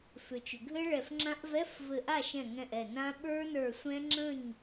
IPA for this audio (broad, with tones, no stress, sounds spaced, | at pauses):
f ʏ˩ t͡ʃ ʏ˩ ɡʱ ɘ˦˥ ɭ ɛ˧˩ f ŋ͡ǁ ã˦˥ ʔ v ɛ˧˥˧ f v ɘ˧˩ ʔ a˥˨ ʃ ɛ̃˧˩ ŋ ɛ̃˧˩ ʔ ɛ˧˩ n ã˦˥ ɓ ə˞˦˥ n ə˞˧˩ sʷ ɛ̃˦˥ ŋ͡ǁ ə̃˥˨ ɲ